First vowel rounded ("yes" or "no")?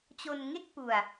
yes